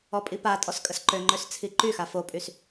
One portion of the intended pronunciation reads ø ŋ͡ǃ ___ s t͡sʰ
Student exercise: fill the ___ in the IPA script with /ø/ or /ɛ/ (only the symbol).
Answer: ø